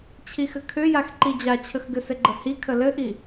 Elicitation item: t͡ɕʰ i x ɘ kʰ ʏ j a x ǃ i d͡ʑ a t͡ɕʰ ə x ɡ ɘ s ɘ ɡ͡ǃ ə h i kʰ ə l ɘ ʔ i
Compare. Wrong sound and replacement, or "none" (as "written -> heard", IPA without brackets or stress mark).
none